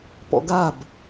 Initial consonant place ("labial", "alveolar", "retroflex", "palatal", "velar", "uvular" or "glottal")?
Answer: labial